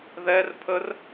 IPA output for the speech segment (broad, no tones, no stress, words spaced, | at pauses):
ðɛr pʰər